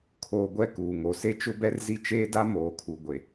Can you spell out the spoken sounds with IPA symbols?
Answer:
kʰ oː˨ ɡʷ ɛ˦˨ k uː˨ ŋ o˨ s e˦ t͡ʃ ʊ˦ b ɛ˦ r z i˦ t͡ʃ eː˦ d a˦ m oː˨ kʰ u˨ ɡʷ e˨

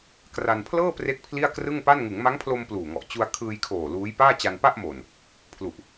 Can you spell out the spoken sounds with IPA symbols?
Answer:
k r a˧ n pʰ l ɤː˥˩ p r e˦˥ k̚ pʰ l i˥˩ a̯ k r ɯ˥˩ ŋ p a˥˩ n ŋ ɯ˩˦ ŋ m a˦˥ ŋ pʰ l o˧ m p l uː˨˩ ŋ ɔ˨˩ ʔ t͡ɕ u˧ a̯ kʰ ɯː˧ j kʰ oː˨˩ l uː˦˥ j p aː˥˩ t͡ɕ a˧ n p a˥˩ ʔ m o˨˩ n | pʰ l u˨˩ ʔ

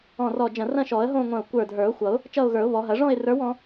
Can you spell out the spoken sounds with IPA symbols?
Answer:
ɔ̃˧˩ r ɔ˧˩ d͡ʒ ɐ̃˧˩ r ɐ̃˥˧ ʃ ɔ˨˩˦ ə̯ ɦ õ˥˧ ŋʷ ɐ̃˧˩ ʊ̯ kʷ ə˞˧˩ dʱ ə˞˨˩˦ ʊ̯ xʷ ʌ˨˩˦ ʊ̯ | t͡ʃ ʌ˥˧ ʊ̯ ɣ ə˞˨˩˦ ʊ̯ β ɔ˨˩˦ ɦ ɐ˨˩˦ ʐ ɔ̃˥˧ ɪ̯ r ə˞˧˥ w ɔ̃˧˥

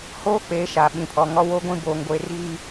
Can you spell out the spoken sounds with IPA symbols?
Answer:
h oː˦ k͡p eː˨ ʃ a˨ ɓ ĩ˨ pʰ ɔ˨ ŋ ɔ˦ w o˦ ɡʷ ĩ˦ b oː˨ ŋ ɡʷ e˨ r ɣ i˨

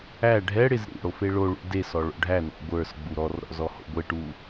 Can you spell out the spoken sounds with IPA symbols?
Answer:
æ ɖʱ ɛ ɽ ɪ z ɾ ḭ ɽ o f e ɭ o ɭ ṵ d e s ɔ ɭ o̰ ɖʱ æ n ɔ̰ ɡʷ ə˞ s ɡ͡b u ɾ ɔ r ɾ ɔ̰ z ɔ h o̰ ɡʷ e ʈ u

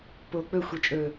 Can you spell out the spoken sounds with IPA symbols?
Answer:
p o k͡p ɵ xʷ i t͡ʃʼ ɵ

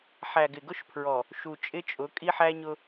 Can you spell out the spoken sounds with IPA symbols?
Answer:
ħ æ˨ ɡ ɪ˨ ɡ ʊ˦ ʃ pʰ ɹ ɔ˨ | ʃ u˨ t͡ʃʼ ɪ˦ t͡ʃʼ ʊ˨˦ kʼ i˦ ħ æ˦ ɲ ʊ˦

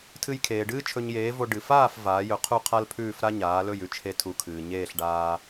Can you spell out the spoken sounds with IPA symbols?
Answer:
tʰ ɨ˧ j kʰ eː˩ ɖ ɨː˥ t͡ʃʰ ɵ˧ ɲ j eː˩˥ v o˧ ɖ ɨ˩ f aː˥˩ f v aː˩˥ j ɵ˩˥ qʰ u˥˩ qʰ a˥ l pʰ ʉː˥˩ f ɾ a˥ ɲ aː˩˥ l ɵ˥˩ j ʉ˥ t͡ʃʰ e˧ tʰ u˩˥ kʰ ɨː˩ ɲ eː˥˩ ɬ ɖ aː˧

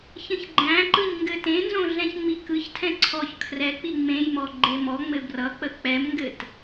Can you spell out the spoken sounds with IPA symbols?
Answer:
ç ə̃ ç ɡ͡ǃ æ̃ ǃ ɯ ɲ ŋ ɡ ɘ t ẽ n z õ ɮ ɛ̃ ç ŋ͡m i k ɯ ç tʰ ɛ̃ ǀʰ ɔ ç kʰ r ɛ k͡p i ŋ͡m ẽ j m ɔ ɡ͡ǃ e m ɔ ŋ͡m ɘ b r ʌ k͡p ə k͡p ɛ m ŋ ɡ ɘ t

